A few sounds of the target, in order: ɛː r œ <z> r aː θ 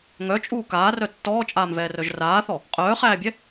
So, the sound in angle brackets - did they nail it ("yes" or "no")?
no